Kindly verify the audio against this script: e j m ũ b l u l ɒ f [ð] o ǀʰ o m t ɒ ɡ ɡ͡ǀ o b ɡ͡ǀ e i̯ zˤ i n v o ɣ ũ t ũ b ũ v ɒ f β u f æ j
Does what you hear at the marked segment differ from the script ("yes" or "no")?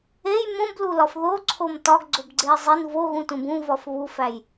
no